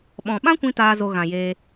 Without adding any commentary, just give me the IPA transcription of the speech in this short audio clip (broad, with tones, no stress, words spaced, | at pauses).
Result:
ɓɔ̃˨ɓã˦kʷĩ˧ taː˦zo˧ɣã˨jeː˧